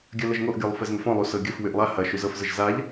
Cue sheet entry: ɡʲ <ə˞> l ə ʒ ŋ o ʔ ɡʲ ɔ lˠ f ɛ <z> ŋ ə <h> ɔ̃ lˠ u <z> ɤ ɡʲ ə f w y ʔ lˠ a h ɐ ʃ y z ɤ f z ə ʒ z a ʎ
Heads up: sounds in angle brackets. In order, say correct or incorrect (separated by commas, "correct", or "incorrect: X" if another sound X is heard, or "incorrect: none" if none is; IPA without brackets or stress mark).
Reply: incorrect: ɜ, correct, incorrect: f, incorrect: s